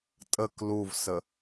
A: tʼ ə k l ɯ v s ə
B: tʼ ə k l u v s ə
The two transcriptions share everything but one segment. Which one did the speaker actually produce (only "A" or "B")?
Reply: B